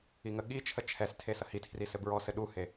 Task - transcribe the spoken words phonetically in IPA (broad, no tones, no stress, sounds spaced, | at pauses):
i ŋ ə ɠ i t͡ʃʰ ə t͡ʃʰ ɛ s tʰ e s ɐ h i tʰ r i s ɘ b ɹ ɔ s ɘ ɗ u h e